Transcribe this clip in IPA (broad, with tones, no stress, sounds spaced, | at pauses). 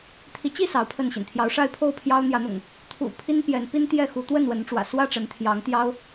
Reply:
t̪ʰ i˨˦ t͡ɕ i˥˨ s ɑ˨˦ ʊ̯ pʰ ə˥˨ n ɕ ḭ˨˩ n t̪ʰ j ɑ˨˦ ʊ̯ ʂ a˥˨ ɪ̯ pʰ o˥˨ ʊ̯ pʰ j ɑ˦ ʊ̯ n̪ j ä˨˦ n̪ ʊ̰˨˩ ŋ | t̪ʰ ṵ˨˩ pʰ i˦ n p j ɛ˨˦ n p i˦ n t̪ j ɛ˥˨ x u˨˦ t̪ w ə˥˨ n w ə˨˦ n ʈ͡ʂ w ä̰˨˩ s w ä˥˨ ʈ͡ʂ ə˨˦ n t̪ʰ j ɑ˨˦ ŋ t̪ j ɑ˦ ʊ̯